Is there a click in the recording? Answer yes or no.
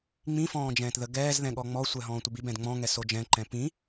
yes